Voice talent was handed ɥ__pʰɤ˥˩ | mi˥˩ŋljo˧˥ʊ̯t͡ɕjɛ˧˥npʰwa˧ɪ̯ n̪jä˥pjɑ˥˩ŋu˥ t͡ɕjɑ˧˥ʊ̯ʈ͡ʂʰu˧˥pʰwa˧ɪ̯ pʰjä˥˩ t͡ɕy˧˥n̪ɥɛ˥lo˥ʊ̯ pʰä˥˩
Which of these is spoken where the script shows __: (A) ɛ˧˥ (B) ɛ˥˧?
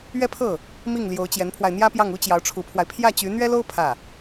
B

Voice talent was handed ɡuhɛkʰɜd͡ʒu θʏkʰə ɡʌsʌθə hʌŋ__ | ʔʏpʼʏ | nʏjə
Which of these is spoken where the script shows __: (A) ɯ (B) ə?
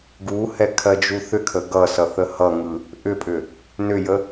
A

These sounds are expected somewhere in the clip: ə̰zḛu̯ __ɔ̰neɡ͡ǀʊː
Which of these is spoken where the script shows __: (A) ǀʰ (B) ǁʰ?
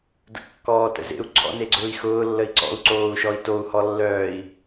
A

